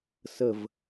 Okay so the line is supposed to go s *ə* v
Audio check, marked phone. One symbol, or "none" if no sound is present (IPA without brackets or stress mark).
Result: ə